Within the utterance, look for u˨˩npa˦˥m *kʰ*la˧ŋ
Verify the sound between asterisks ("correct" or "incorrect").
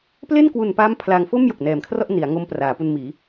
incorrect